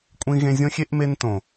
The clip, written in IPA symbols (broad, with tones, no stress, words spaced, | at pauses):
kʷʼĩ˧ ɣẽ˧zʲõ˦xʲe˦ʔ me˧ntõ˨